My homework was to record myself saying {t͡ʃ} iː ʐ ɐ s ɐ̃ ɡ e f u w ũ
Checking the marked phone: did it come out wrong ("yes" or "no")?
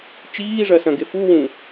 no